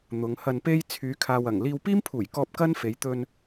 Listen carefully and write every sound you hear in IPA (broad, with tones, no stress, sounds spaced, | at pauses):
n̪ ʊ˨˧ ŋ h ɐ˧ n p e˥ j t͡sʰ yː˨˧ kʰ aː˨ w ɐ˨˩ ŋ l iː˧ w p iː˥ m pʰ uː˨˩ j k ɔː˧ p̚ k ɐ˥ n f e˨˧ j t̪ ɵ˧ n